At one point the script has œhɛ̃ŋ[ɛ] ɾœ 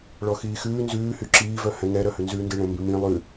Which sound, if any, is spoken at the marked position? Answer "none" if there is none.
ɛ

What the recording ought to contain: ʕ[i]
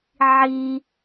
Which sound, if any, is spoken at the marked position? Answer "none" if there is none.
i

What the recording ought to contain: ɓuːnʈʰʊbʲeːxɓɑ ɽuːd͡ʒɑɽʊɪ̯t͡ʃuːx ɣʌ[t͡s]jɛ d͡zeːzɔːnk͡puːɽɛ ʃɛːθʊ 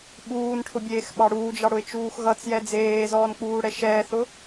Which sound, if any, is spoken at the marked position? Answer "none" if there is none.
t͡s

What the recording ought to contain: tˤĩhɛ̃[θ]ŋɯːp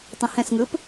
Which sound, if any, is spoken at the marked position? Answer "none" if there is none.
s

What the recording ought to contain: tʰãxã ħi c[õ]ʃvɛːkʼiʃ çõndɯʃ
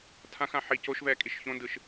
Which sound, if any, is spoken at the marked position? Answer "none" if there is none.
o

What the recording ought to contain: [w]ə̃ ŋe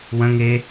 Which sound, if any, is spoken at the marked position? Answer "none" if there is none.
w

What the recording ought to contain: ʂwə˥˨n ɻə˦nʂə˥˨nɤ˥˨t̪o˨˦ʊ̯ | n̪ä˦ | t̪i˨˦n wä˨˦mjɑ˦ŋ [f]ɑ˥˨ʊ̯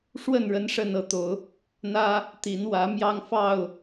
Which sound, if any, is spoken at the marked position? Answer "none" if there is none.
f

